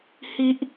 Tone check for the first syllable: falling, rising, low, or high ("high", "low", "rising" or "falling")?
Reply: high